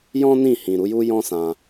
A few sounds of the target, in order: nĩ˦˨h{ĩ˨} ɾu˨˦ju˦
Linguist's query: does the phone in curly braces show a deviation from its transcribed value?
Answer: no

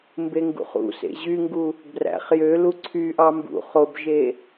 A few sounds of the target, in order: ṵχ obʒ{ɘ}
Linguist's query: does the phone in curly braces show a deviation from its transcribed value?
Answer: yes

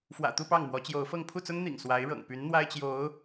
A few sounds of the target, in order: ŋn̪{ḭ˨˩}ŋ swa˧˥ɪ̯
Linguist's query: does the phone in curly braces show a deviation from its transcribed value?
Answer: no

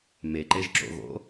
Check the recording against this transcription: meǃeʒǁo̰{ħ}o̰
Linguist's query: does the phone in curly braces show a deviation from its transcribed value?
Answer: yes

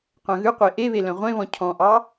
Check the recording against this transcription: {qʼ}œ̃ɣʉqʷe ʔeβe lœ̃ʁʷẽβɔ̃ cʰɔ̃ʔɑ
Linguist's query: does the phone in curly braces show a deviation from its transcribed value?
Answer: yes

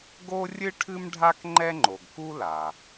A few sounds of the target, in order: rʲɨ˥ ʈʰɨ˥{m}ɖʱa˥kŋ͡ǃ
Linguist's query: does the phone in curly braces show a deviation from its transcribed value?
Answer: no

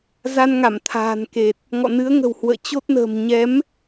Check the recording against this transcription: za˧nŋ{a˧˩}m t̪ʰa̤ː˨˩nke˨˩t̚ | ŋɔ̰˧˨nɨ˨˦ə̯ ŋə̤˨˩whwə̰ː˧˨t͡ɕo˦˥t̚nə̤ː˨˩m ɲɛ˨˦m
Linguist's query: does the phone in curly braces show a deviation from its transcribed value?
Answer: no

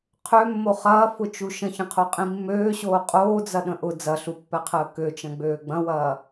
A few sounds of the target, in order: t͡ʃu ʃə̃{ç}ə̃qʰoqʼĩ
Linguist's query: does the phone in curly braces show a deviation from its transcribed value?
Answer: no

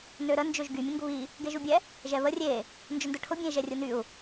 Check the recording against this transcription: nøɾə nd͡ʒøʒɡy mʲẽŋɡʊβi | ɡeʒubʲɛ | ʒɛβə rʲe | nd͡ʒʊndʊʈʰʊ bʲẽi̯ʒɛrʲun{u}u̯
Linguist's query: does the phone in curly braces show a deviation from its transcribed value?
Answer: yes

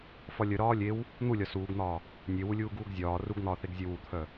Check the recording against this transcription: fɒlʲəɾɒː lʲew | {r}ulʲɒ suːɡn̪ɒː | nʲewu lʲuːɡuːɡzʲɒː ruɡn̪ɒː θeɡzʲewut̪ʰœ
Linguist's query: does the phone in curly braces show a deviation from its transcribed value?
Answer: yes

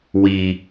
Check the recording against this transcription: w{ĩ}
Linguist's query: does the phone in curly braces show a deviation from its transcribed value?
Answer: yes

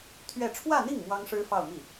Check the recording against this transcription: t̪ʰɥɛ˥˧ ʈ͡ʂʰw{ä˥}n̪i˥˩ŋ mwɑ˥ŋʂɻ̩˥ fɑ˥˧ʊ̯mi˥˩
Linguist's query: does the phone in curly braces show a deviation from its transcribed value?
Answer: yes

